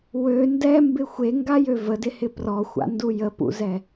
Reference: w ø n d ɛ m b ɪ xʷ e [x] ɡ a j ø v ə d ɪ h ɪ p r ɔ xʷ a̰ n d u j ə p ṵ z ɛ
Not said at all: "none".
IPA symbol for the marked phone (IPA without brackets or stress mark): ŋ